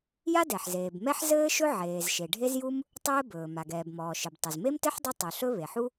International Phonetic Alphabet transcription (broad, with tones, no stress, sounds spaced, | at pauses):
j a˥ d ɛ˩ ħ z eː˩ b m ɛ˥ ħ z ɘː˥ ʃ ɵ˥ ʕ eː˩ z ʃ e˩ ɖʱ e˥ z j u˥ m | tˤ ɘː˥ b ɵː˩ m a˩ ɡ ɛː˩ b m ɔː˩ ʃ ɘ˩ b tˤ ɘ˩ z m e˥ m t ɘ˥ ħ dˤ ɘ˥ tˤ ɵ˩ ɬ ɵ˥ β e˩ ħ u˥